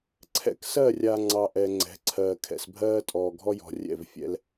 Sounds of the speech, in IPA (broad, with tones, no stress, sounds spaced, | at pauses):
ǀʰ ɛ̰˨ k s ɜ˦˨ rʲ a˨ ŋ͡ǀ ɑ˨ ʔ ɛ˨ ŋ͡ǀ ɛ̤˨˦ ǀʰ ɜː˨ kʰ ɛ̰˨ s bʱ ɜː˦ tʼ ɔː˨ ɡʱ ɔ˦ j ɔ̤˨ rʲ ɛ̰˦˨ v fʲ ɛ̰˦ l